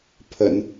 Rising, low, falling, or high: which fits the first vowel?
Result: low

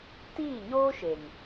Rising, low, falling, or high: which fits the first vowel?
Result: falling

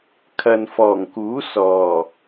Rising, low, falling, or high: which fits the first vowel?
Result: low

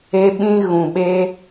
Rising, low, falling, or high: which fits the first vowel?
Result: high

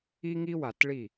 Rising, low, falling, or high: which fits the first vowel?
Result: high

